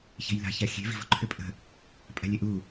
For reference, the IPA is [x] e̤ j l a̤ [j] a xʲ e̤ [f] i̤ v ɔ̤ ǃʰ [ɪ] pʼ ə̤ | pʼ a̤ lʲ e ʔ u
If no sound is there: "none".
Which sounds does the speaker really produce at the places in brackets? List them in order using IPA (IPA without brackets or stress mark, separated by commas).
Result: ç, ç, v, ʏ